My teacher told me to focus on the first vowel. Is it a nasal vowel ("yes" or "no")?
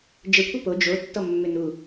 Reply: no